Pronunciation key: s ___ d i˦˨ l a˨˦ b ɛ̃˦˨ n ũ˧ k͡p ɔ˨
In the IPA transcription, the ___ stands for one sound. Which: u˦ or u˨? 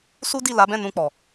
u˦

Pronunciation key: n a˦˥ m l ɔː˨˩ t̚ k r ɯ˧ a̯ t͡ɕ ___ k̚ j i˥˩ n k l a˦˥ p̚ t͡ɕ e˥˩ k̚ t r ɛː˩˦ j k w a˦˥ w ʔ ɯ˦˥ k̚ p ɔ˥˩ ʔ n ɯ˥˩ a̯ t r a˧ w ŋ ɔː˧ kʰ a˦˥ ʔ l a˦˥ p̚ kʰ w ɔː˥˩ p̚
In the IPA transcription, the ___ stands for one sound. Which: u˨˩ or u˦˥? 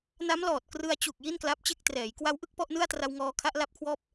u˨˩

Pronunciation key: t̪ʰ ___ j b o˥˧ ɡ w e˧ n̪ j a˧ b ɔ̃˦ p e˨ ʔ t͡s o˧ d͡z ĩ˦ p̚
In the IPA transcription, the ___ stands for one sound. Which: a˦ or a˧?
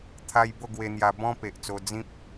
a˧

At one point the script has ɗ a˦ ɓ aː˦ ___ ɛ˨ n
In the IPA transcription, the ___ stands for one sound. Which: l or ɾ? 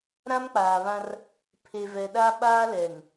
l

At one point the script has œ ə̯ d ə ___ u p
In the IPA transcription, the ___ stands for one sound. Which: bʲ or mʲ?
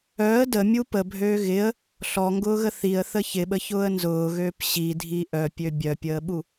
mʲ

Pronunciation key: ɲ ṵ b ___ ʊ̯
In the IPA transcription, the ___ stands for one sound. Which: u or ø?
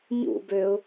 ø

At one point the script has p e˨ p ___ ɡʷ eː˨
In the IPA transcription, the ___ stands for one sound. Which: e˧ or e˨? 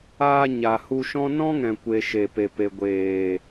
e˨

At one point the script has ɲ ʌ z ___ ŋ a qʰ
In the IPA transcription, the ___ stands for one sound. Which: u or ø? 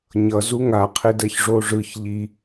u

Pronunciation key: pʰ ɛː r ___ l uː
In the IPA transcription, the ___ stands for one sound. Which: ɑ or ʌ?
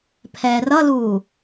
ʌ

